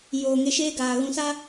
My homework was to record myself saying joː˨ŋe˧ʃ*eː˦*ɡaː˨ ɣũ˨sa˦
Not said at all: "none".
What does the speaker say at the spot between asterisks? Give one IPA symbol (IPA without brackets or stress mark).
eː˦